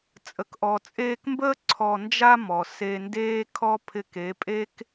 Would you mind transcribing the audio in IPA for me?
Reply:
t͡sʼ ə˨ k ʔ ɔ˨ t͡sʼ eː˧ k m b əː˦ ǀʰ ɔ˧ n d͡ʒ a˦ m ɔ˨ s e˧ n d eː˦ kʰ ɔ˦ pʰ ɪ˧ k e˨˦ pʼ e˦ k

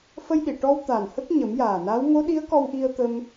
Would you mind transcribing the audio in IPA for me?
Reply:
f ə˧ j ɗ i˨˩˨ ʈ ɔ˧ w t̪ aː˨˩ n h ə˦˥ k̚ ɲ ə˨˩˦ m j aː˨˩ n a˧˥ w ŋ o˧˥ ɗ i˧˥ ə̯ k ɔ˧ w ʔ i˧ ə̯ t̪ ə˧ m

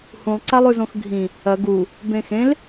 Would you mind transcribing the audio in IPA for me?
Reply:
h ũ lˠ ǀ a lˠ ʉ z õ x ɡʱ ĩ | ɐ ɡ u | b ẽ x ẽ l

